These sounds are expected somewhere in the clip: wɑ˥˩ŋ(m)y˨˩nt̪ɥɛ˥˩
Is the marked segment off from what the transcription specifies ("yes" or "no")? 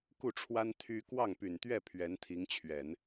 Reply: yes